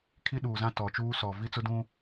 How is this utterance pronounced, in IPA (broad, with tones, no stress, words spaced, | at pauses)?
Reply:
kʰi˦ɗuː˨zã˦ tɔ˨t͡ʃuː˦sɔ˨ vi˦t͡sʊ˦dũ˦